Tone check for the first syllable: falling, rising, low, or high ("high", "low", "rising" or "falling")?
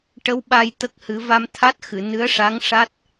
rising